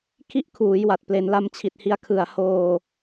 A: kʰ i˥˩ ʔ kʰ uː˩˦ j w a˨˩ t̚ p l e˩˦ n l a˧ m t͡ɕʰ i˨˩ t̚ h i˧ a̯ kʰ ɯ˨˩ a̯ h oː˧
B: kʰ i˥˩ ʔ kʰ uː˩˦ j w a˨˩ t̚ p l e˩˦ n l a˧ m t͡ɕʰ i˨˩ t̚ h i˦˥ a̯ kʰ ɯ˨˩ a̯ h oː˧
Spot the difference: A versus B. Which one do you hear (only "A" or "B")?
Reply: A